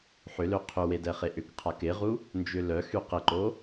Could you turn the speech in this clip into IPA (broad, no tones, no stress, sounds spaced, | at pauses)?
ħ ʏ l ø qʰ ʏ w e d ɛ χ e ʔ ʏ k qʰ a k ɪ ʁ u | n d͡ʒ ʏ l œ x y q ɪ ǃ o